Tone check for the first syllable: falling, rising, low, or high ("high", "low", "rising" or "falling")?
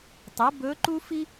rising